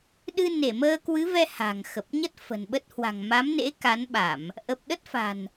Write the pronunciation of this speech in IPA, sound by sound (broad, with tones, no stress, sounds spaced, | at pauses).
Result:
ɗ ɨ˧ n e˧˩ m əː˧ k w ɨ˨˦ v ɛ˧ h a̤˨˩ ŋ x ə˨˩ p̚ ɲ ə˦˥ t̚ f ə̤˨˩ n ɓ ə˦˥ t̚ h w a̤˨˩ ŋ m a˨˦ m n ḛ˧˥ k a˨˦ n ɓ a˧˩˨ m | ʔ ə˨˩ p̚ ɗ ə˦˥ t̚ f a̤˨˩ n